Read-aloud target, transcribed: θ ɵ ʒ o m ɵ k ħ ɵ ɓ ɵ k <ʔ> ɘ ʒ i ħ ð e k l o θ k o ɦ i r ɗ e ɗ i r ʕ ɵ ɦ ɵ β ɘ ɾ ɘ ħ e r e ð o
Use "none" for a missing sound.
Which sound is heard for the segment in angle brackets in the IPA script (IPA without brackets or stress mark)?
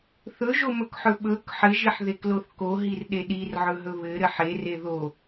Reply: ħ